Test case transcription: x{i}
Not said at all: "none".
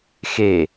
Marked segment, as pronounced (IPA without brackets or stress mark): e